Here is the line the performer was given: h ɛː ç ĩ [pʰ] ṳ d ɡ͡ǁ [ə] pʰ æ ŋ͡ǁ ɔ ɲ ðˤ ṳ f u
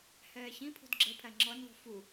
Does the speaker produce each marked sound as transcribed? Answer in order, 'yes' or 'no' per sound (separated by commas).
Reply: yes, yes